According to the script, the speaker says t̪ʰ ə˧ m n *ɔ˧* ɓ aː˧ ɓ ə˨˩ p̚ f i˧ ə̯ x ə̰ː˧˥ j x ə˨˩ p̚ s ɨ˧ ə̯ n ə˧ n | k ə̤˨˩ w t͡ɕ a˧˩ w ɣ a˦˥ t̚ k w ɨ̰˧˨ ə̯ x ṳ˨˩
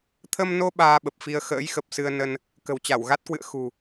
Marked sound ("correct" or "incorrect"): incorrect